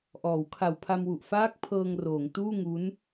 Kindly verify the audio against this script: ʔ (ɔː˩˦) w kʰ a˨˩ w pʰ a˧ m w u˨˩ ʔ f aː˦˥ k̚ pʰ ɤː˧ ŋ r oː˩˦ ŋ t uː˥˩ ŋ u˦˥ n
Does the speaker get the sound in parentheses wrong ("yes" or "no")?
no